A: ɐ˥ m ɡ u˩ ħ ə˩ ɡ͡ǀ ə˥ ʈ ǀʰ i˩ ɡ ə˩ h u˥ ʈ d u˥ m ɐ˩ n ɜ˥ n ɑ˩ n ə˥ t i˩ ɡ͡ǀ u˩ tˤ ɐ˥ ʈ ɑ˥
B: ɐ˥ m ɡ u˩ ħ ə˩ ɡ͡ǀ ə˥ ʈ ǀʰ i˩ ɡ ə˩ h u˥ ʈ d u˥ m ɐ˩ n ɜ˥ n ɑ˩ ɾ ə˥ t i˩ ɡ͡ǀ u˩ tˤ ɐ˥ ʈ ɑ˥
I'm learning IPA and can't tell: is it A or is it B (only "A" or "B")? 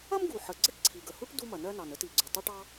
A